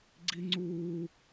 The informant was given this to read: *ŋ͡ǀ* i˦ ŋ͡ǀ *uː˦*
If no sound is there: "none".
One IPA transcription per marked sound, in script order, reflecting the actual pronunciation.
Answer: ɡ͡ǀ, uː˦

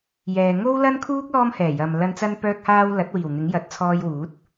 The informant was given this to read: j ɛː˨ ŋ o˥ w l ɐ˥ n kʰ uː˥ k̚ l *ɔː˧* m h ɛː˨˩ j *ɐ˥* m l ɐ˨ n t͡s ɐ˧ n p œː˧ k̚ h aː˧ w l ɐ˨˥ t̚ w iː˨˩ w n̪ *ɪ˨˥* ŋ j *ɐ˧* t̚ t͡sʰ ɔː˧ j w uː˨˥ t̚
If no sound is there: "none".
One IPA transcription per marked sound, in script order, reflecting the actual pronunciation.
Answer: ɔː˧, ɐ˨, ɪ˨˥, ɐ˨

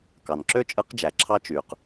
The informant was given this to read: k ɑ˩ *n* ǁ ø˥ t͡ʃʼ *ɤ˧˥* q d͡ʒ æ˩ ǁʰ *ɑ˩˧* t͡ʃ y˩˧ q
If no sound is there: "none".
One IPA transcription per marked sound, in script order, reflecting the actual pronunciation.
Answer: n, ɯ˧˥, ɑ˥

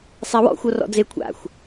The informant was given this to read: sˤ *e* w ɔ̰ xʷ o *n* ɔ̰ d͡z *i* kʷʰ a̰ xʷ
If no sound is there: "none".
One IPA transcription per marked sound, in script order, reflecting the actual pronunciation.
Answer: e, r, e

